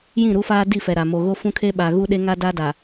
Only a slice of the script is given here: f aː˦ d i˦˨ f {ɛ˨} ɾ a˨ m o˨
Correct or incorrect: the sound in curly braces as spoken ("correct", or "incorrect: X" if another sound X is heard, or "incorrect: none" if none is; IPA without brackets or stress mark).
correct